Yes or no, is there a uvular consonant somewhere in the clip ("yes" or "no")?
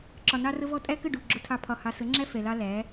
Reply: no